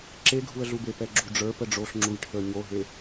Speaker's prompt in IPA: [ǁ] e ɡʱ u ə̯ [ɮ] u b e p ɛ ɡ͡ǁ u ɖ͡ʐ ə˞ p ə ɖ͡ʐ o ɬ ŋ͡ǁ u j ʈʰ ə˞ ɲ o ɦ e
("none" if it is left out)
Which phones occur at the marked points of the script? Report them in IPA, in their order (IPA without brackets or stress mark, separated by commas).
ǁ, ɮ